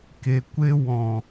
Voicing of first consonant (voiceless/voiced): voiceless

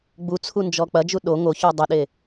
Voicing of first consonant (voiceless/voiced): voiced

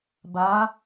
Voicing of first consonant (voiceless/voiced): voiced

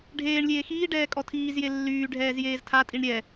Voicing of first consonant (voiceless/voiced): voiced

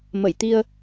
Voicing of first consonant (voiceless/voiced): voiced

